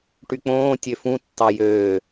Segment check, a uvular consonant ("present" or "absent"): absent